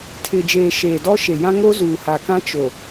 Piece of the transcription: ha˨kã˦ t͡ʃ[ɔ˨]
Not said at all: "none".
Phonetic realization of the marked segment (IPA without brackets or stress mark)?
o˨